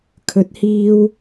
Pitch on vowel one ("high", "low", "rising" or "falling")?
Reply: rising